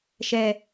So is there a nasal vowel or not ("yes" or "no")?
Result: no